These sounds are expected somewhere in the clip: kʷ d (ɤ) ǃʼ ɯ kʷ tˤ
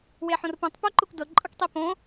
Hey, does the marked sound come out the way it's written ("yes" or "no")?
yes